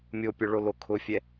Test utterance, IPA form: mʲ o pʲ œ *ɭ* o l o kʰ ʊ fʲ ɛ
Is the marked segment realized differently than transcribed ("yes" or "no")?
no